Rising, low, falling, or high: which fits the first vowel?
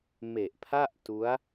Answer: low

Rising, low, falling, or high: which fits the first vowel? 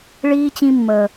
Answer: high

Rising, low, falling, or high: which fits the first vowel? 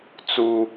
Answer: high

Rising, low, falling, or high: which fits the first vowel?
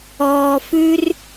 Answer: low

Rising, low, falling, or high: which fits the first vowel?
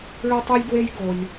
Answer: high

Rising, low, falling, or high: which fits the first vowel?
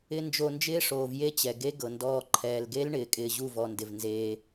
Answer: high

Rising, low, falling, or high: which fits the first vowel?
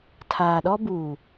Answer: low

